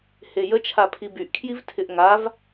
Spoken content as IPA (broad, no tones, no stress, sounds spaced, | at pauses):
h e j ə t͡ʃʰ a pʰ i b y ʔ kʰ j i v tʰ ɪ ʔ ŋ a v